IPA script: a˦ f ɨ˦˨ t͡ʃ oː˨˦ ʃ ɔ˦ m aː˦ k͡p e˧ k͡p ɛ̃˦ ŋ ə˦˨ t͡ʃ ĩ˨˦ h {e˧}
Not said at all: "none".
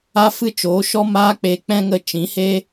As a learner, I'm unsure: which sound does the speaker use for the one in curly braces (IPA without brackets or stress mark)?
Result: e˦